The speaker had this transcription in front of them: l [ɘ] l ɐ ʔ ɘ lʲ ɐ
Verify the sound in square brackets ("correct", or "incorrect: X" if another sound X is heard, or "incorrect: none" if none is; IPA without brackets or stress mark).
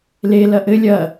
incorrect: e